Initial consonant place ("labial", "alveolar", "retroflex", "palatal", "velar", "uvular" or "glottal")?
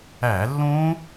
alveolar